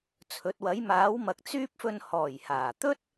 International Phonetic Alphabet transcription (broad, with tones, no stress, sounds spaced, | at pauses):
t͡sʰ ɵ˨˥ t̚ w ɐ˨˥ j m aː˨˥ w m ɐ˨˥ k̚ t͡s yː˥ p̚ f ɵ˧ n h ɔː˨˩ j h aː˨˩ t̪ ɵ˥ t̚